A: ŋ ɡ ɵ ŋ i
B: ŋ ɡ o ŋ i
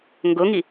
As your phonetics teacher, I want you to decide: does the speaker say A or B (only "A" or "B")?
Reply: B